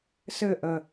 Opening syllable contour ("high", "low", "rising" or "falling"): falling